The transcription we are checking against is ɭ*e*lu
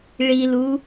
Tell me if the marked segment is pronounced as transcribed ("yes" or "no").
no